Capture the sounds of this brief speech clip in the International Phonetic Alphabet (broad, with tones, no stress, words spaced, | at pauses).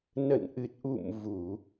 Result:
nə̰˧˨nʔɨ˨˩t̚ʔṵ˧˨m vu˧˩˨